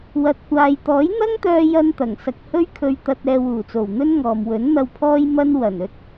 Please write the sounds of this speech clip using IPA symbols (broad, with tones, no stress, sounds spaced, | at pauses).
w ɐ˧ t̚ kʷ aː˧ j t̪ ɔː˨˥ j n̪ ɐ˥ ŋ t̪ œː˧ j ɐ˥ n t̪ ɐ˨˩ ŋ s ɐ˨ k̚ h ɵ˥ ɥ kʰ ɵ˧ ɥ t̪ ɐ˧ t̚ ɛː˧ w uː˨˩ t͡s o˨˩ w n̪ ɵ˥ n ŋ ɔː˨ m w ɵ˨˥ n n̪ ɐ˧ w pʰ ɔː˥ j m ɐ˥ n w ɐ˨˩ n ɵ˥ t̚